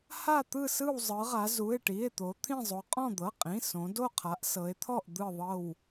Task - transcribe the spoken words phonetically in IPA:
ha˦˨t̪ɯ˦˨sɯ˦˨w zˤɯ˩˧ʁa˩˧ zu˩˧˩e̯ʈi˩˧˩e̯t̪o˩˧ t̪ʰĩ˦˨zˤo˩˧ qʼɔ̃˦˨d̪ɤ˩˧˩qʼĩ˩˧˩ sõ˩˧ do˦˨qʰa˩˧ʔsɤ˩˧e̯t̪ʰɔ˦˨ʔ d̪ɯ˦˨ðˤɤ˦˨w

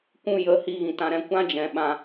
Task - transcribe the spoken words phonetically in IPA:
kʷũ˧jə˨˦ hi˧ɣĩ˨tã˧ɾɛ̃˧ kʷã˦d͡ʒɛ̃˨ ɓã˧

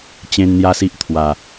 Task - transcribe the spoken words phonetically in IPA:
t͡ɕẽ˧n n̪ja˦si˦ʔ t̪ʰwa˨˩

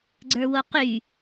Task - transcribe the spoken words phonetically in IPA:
ɡ͡ǀə˞woqy

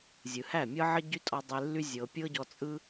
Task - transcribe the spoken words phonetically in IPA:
zʲɯ˨hæ˦˨mʲɤ˦ʕə˦ ɟy˦tʼɔ˧ dˤe˧lːy˦ zʲɤ˧ pʲɤ˦ɟɔ˧ t͡sʼɯ˦

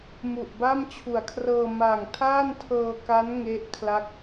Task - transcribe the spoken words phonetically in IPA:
mu˨˩ʔba˥˩mt͡ɕʰu˨˩a̯kʰrɤː˧ ma˨˩ŋtʰaː˥˩ntʰɤː˧ka˦˥n ŋe˦˥ʔkʰla˦˥k̚

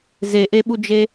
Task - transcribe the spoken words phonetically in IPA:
zeʔeɓud͡ʒe

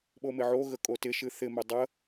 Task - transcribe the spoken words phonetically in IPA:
ɓomɪʕoɣə kʼotɪʃɨ θɪmɪ dˤə

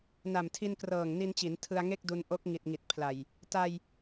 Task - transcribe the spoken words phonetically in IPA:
na˨˩mtʰi˧nkrɤː˨˩ŋ ni˧nt͡ɕi˩˦n tʰɯ˧a̯ŋe˥˩k̚du˧n ʔo˦˥k̚ŋi˨˩t̚ ŋi˨˩t̚pʰla˨˩j | ta˧j

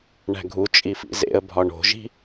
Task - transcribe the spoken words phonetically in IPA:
ɳæ̤ɡʱu t͡ʃʼifḭzḛə̯ bʱɒɳo̤ʒi̤

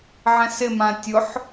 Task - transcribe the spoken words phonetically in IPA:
ʕɛ̃sɪmã tʲʊħ

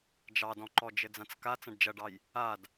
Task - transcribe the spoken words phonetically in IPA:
d͡ʒɑdɔ̃ǃɔd͡ʒɘ d͡zãt͡ska t͡sɐ̃ɖd͡ʒɐɖɑj | ad

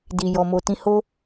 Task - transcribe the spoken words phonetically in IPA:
di˨jɔ˨mo˨tĩ˧ ho˦

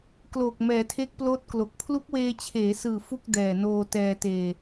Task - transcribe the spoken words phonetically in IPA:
kloː˨˩k̚mɛː˩˦ tʰe˦˥k̚ploː˦˥t̚klo˨˩k̚ pʰlu˦˥k̚weː˧t͡ɕʰeː˩˦sɯː˨˩ fu˥˩k̚dɛː˨˩noː˧ tɛː˧teː˧

